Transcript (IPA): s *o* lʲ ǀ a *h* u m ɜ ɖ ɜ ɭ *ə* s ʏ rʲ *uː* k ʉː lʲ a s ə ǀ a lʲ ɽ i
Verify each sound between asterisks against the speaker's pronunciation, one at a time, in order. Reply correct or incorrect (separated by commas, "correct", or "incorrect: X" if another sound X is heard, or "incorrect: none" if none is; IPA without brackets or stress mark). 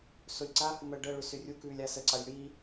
correct, correct, incorrect: ʏ, incorrect: u